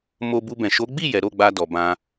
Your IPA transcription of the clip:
mo˧bu˧bɛ̃˨ ʃo˨˦ɡ͡bi˦˨ jɛ˨˦ ɾo˦˨ɡ͡ba˧dɔ˨bã˧

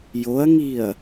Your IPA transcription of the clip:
joɐ̯ŋiɐ̯

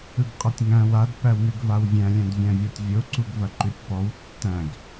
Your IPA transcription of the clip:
ɯɡqʼɐtʲŋæ̃w ad pæwnʉɡvawvʲæ̃ lʲæ̃dvʲæ̃vʲɔtʲvʲo ǀuɡvɐǃʉtʲpɔw tːæ̃ɡ

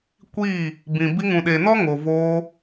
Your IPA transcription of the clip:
kʷiː˦˨ | bĩ˨ bi˧ŋũ˨ɗe˨nɔ˦ ŋo˨ voː˧

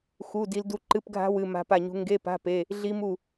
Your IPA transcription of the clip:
xu˧˥˧ di˦˥ldu˦˥ ǃɨ˧˥˧pɡʱa̤˦˥ wɨ˧˥˧ ma̤˦˥pa˥˨ɲṳ˦˥ ŋɡe˧˥˧pa̤˧˥˧ pe˧˥˧ | ɮi˦˥mu˥˨

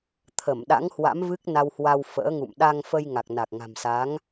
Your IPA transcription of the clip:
t̪ʰə˧˩m ɗa̰˧˥ŋhwa̰˧˥m vɨ˦˥k̚na˧whwa˧w fə̰ː˧˥ŋṵ˧˨m ɗa˧ŋfə˧jŋa˨˩k̚ na˨˩k̚ŋa̤˨˩msa˨˦ŋ

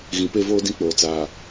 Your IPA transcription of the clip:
ɣĩ˨pe˦˨voː˦dĩ˦ k͡poː˨ t͡saː˨

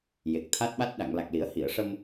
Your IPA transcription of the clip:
je˨˩k̚t̪ʰa˦˥t̚ɓa˦˥t̚ ɗa˨˩˨ŋla˨˩k̚li˨˩˦ə̯ hi˨˩˨ə̯ʂə˧m

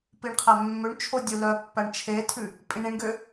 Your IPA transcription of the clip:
piɳqʰæmːøɳt͡ʃʰo dʲulœpːæɳ t͡ʃʰetʰʉ | pʼĩɳĩɳɡø

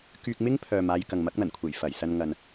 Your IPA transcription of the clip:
kyː˧k̚mɪ˥ŋpʰœː˨m aː˧jkɐ˨ŋ mɐ˨˥k̚n̪ɐ˨˩nkʷʰe˨˩j fɐ˨˩jsɐ˧nŋɐ˨n

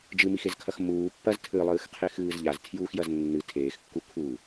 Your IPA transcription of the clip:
d͡ʒɨmixezkʰɐx muː pːɐz tʰɨlˠɨːxqʰexɨːz ʎaztʰjuːxjɐz nːɨ tʰeːxkːu kʰu

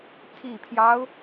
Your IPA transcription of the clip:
t̪ʰi˨˩pʰjɑ˦ʊ̯

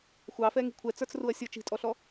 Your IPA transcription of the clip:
xʷɑfɛŋi̤ kʷʰɛt͡sə˞t͡sruɐ̯ sʲə˞t͡ʃi̤tʼɔɬɔ

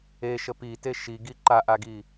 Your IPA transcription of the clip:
eʃə pite ʃiɡi ǃaʔaɡi

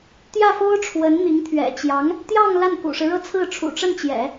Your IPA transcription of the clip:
t̪jä˥˩fo˥ʊ̯ʈ͡ʂʰwə˧˥nn̪i˧˥ŋ t̪ʰɥɛ̰˨˩t͡ɕjɑ˧˥ŋ | t̪jɑ˥˧ŋ la˥˩nkṵ˨˩ʂɻ̩˦ɻɤ˥˧ t͡sʰɹ̩˥˩ ʈ͡ʂʰṵ˨˩ʈ͡ʂə˥˩nt͡ɕjɛ̰˨˩˦

